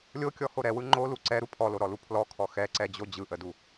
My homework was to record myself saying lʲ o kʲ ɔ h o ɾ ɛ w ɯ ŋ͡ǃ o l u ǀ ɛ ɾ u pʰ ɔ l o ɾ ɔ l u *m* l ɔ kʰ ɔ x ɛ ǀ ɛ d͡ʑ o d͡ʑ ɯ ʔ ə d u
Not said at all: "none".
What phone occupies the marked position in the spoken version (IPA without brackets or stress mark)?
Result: pʰ